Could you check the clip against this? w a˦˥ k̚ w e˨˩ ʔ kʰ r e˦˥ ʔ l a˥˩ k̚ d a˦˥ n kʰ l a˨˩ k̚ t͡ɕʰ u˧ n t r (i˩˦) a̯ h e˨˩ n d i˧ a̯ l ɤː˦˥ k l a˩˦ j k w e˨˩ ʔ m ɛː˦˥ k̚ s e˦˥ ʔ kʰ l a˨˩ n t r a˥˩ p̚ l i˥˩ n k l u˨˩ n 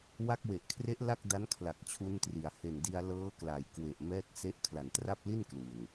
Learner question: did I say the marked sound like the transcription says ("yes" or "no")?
yes